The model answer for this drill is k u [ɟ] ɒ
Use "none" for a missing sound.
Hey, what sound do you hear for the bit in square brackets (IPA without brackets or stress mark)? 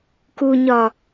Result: ɲ